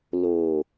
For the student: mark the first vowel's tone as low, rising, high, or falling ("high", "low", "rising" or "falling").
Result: low